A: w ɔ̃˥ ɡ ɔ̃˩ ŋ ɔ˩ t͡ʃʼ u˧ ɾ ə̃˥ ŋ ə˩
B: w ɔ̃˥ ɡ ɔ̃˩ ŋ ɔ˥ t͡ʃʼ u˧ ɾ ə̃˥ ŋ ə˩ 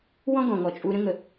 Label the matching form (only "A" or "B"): A